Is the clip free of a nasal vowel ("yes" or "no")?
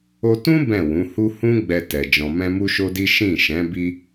no